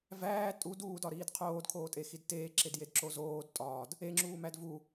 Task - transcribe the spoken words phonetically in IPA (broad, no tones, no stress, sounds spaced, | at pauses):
v æː tʼ u d uː d ɒ ɾ iː d qʰ oː d kʰ oː tʼ e x i d t eː ǁ e d j e d ǁ o z oː d tʼ ɒː d | e ŋ͡ǁ uː m æ d v u